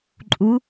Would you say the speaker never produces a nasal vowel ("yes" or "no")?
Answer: yes